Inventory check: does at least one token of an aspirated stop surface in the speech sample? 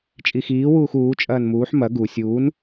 no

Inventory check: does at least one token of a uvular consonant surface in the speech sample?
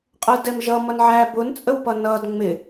yes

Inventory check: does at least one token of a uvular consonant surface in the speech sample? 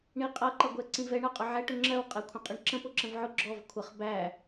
yes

